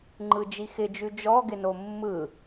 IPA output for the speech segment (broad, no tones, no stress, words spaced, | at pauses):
ŋ͡ǃɯd͡ʒixɪd͡ʒʉ d͡ʒɔɡɪno mːɯ